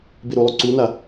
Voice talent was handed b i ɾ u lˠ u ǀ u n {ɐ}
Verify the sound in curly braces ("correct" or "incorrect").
incorrect